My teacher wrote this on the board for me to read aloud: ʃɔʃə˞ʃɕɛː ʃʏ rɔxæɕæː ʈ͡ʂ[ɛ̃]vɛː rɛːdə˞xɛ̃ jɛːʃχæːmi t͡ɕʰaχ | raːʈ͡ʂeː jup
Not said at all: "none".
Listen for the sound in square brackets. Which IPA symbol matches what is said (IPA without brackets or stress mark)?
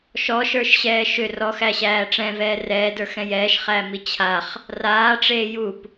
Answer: ɛ̃